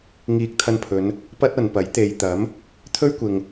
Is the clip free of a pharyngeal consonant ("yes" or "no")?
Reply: yes